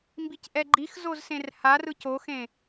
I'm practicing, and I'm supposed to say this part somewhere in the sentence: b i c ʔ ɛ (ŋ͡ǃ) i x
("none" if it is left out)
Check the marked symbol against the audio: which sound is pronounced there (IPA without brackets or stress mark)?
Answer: ɡ͡ǃ